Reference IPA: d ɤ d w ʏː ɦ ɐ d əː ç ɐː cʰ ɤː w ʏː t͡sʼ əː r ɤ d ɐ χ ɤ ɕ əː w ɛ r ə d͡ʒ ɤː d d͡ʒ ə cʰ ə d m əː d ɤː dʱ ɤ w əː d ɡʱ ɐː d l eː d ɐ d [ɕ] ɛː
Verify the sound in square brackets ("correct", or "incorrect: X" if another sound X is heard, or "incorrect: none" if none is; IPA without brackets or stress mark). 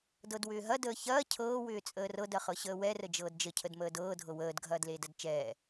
incorrect: t͡ʃ